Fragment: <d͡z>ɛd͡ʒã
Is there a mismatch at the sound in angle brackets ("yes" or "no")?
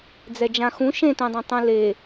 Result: no